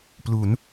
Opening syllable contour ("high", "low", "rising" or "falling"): rising